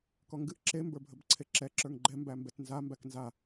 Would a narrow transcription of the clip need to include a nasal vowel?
no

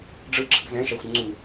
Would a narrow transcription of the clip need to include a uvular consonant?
no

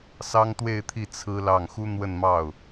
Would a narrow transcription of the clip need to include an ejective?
no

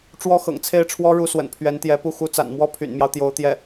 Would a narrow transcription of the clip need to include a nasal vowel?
no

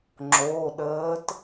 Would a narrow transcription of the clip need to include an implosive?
yes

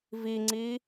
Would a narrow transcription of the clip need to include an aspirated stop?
no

